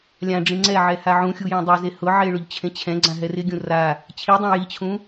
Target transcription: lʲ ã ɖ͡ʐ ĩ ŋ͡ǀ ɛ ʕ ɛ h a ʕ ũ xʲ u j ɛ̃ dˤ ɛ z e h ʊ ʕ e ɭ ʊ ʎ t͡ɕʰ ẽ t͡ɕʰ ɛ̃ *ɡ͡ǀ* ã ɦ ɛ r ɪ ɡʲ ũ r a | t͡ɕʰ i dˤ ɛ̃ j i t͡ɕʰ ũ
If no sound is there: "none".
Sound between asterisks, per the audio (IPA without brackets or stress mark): ɡ͡ǀ